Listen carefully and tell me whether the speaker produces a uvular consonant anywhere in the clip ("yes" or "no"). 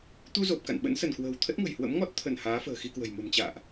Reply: no